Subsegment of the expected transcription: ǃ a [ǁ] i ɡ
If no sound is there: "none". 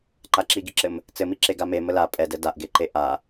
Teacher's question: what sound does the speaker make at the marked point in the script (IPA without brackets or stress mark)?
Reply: ǁ